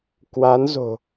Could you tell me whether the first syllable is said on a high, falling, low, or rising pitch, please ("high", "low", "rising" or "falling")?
rising